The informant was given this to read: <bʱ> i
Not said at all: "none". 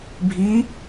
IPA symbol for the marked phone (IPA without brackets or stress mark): bʱ